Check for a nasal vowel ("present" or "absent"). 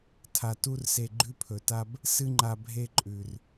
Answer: absent